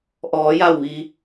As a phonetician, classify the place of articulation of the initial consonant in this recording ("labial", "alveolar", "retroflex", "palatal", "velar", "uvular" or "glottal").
glottal